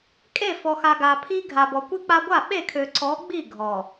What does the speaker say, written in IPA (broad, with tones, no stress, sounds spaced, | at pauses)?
kʼ e˦˨ f ɔ˨ x a˨ ɡ a˨ pʰ i˦ ɡʱ a˨ b ɔ˨ kʷ i˦ k͡p a˦ ɡʷ a˦˨ ɓ e˦˨ kʰ ø˨ ǀ ɔ˨˦ ɡ͡b i˦˨ ɡʱ ɔ˨